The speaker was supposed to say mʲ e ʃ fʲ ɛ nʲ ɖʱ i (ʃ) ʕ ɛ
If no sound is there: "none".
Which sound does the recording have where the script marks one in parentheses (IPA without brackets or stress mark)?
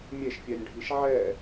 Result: ʃ